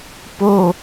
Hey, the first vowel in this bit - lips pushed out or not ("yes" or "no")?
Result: yes